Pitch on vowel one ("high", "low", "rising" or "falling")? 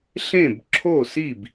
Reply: falling